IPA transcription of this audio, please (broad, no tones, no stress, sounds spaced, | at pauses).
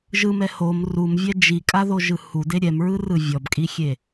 ʒ ɯ m ɛ h o m r u m vʲ ɛ d͡ʒ i kʼ a ð o ʒ ɯ h u d e ɾʲ ɛ m ɹ ɯ r ɯ vʲ ɔ b kʼ i xʲ e